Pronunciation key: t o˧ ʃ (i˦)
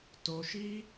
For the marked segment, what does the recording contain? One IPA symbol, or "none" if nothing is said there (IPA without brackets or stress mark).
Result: i˦